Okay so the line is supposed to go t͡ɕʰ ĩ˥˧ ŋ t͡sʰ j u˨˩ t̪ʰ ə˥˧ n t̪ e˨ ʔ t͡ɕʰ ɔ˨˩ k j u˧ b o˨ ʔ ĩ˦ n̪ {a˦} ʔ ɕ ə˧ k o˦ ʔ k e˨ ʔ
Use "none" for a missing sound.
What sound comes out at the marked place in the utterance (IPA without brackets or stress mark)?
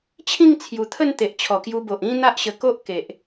a˦